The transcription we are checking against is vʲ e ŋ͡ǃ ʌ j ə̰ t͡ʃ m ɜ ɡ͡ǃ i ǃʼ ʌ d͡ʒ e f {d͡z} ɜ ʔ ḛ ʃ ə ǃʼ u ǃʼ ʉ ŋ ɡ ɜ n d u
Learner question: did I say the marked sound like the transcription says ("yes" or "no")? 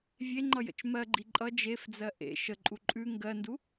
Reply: yes